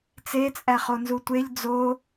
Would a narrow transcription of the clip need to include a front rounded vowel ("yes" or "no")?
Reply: no